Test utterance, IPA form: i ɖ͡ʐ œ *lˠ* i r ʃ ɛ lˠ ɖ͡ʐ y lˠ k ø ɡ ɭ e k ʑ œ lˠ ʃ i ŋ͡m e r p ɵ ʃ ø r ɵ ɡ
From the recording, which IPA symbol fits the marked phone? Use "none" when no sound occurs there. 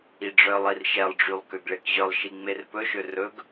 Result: lˠ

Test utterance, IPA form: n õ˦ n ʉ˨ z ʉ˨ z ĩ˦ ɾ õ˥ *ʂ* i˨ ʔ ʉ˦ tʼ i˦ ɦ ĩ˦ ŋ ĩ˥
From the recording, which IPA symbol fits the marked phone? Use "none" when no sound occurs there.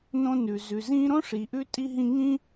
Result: ʂ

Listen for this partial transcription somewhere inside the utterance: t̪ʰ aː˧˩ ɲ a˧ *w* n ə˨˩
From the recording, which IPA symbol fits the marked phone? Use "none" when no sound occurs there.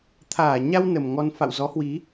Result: w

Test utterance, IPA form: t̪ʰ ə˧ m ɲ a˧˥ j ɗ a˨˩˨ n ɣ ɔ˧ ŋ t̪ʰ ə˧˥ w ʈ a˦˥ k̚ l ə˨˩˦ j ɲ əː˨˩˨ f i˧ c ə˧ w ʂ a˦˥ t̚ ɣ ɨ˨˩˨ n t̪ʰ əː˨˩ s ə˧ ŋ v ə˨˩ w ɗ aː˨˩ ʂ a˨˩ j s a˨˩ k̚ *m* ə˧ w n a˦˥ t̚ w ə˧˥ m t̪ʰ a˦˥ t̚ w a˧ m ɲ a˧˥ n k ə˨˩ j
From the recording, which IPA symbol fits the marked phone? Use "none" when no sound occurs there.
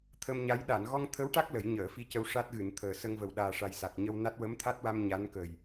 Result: ɲ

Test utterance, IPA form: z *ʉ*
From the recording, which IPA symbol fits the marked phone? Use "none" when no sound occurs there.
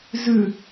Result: ʉ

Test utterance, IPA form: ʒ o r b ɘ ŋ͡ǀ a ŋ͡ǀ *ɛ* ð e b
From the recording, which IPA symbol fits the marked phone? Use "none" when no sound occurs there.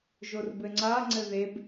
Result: ɘ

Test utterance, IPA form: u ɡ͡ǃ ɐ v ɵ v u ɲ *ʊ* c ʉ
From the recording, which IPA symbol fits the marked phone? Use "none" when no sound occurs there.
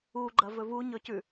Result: ɵ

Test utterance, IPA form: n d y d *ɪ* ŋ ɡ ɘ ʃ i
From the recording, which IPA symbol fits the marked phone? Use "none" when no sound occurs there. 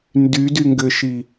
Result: y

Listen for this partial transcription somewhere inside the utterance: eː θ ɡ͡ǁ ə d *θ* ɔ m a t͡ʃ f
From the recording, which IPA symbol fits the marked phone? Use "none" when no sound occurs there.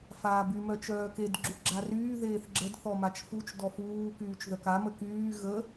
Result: θ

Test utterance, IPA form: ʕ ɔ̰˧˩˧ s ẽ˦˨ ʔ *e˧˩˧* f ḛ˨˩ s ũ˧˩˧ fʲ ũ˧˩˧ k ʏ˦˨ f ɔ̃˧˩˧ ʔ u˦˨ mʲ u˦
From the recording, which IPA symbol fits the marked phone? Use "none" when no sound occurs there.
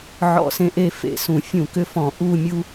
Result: e˦˨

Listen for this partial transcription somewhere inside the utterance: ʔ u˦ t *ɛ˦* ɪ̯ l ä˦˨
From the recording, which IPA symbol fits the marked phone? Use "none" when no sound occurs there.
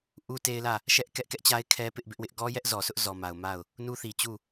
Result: e˦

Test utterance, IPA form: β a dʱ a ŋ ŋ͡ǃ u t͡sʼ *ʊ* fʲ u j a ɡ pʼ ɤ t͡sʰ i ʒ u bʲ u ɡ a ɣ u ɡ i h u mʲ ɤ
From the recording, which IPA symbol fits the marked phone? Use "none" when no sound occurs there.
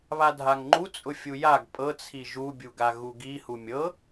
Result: ʊ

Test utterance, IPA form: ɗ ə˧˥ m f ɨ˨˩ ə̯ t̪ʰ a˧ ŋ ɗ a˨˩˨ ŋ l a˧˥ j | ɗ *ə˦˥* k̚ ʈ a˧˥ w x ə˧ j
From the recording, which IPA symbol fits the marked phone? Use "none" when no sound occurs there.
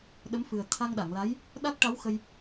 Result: a˦˥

